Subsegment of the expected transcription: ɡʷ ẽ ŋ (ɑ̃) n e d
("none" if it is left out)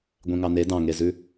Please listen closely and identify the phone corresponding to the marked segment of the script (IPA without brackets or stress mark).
ɑ